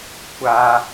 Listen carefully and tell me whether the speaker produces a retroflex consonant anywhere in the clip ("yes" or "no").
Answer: no